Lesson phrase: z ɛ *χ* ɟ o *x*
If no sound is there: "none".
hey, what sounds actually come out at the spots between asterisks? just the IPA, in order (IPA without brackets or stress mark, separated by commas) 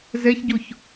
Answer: ç, ç